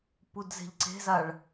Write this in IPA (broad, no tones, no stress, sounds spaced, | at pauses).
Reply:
p u d z e̤ ʎ ǀ e̤ z a ɭ